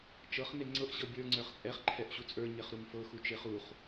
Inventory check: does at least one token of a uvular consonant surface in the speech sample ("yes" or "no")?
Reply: yes